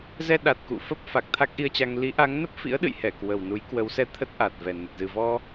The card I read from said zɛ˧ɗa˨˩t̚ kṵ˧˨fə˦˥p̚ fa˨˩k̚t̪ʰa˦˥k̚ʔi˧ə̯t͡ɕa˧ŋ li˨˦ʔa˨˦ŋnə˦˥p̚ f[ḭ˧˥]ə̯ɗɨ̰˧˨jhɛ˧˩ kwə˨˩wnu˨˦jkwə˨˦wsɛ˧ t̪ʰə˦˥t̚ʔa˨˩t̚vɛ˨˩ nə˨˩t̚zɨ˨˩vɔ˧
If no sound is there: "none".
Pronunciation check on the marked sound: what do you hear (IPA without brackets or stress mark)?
ḭ˧˥